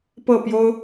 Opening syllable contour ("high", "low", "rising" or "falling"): falling